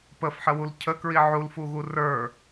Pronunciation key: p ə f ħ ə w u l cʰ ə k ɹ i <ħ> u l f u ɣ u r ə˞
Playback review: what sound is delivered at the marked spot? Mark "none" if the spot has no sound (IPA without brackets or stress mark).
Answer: ʕ